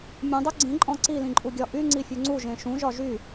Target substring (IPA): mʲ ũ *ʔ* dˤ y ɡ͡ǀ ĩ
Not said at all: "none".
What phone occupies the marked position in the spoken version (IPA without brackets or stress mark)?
none